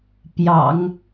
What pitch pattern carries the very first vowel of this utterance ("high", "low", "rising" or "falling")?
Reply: low